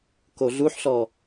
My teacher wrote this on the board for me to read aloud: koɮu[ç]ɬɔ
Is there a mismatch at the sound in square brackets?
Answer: yes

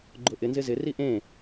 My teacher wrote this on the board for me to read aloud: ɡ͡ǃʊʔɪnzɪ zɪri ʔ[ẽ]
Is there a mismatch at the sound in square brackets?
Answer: no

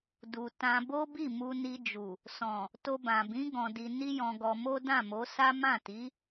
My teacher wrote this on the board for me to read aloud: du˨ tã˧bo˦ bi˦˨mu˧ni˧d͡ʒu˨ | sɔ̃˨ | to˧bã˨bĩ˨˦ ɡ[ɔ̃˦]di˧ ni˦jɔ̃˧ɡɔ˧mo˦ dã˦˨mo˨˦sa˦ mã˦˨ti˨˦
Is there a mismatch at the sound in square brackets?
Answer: yes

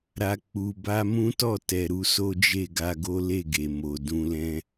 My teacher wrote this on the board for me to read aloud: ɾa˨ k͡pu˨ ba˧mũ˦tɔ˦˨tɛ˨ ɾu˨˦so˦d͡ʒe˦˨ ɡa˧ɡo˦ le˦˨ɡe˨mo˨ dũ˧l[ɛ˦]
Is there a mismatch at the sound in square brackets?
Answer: yes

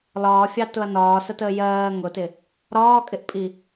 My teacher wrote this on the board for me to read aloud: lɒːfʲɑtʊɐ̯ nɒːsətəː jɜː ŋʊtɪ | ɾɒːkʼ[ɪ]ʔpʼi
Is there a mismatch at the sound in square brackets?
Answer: no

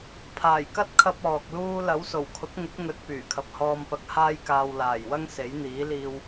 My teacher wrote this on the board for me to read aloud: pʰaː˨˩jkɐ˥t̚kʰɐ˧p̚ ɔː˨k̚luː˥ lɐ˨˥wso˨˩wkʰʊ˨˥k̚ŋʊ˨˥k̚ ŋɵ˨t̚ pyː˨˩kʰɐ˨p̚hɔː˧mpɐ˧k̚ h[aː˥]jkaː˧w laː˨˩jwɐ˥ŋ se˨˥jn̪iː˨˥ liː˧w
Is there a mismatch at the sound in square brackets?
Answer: no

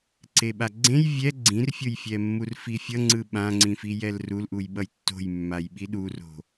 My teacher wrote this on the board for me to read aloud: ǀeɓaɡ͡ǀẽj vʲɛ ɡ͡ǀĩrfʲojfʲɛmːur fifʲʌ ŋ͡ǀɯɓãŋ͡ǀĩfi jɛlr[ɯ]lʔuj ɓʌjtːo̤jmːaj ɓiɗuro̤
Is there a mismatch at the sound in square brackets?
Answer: yes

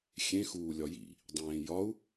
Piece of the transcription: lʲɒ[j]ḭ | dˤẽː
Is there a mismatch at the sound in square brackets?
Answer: no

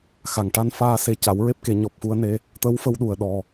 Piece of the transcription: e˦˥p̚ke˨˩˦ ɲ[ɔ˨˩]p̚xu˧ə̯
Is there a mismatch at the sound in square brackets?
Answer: no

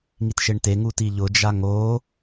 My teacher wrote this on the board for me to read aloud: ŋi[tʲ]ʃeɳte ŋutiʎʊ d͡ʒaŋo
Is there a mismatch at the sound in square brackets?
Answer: yes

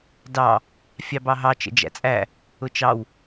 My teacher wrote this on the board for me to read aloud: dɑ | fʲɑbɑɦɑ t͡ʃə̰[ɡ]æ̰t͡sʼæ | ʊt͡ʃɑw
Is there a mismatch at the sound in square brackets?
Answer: yes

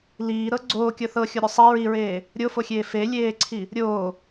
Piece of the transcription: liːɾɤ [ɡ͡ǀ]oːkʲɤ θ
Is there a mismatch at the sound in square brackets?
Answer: no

